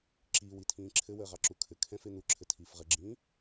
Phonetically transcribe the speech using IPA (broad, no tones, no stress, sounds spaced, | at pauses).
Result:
ǁ iː w i tʰ ĩː ǁʰ ɘ w əː ʁ ɑ ǁ u kʰ ɘ kʰ ɛ̃ f e n̪ u ǁʰ ɘ tʰ iː f ʁ ə ɡ͡ǁ ĩː